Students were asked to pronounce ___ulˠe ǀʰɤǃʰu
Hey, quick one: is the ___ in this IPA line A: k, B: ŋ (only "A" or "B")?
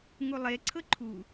B